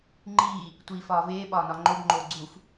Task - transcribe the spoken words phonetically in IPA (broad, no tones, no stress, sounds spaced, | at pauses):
ŋ͡ǃ iː | tʷ iː f ɒː v eː ɓ ɒː n ɒ ŋ͡ǃ o b ŋ͡ǃ oː ɡ͡ǀ u f